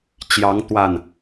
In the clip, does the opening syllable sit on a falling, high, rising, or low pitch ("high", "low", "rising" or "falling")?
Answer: rising